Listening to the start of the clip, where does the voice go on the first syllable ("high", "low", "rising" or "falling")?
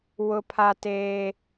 high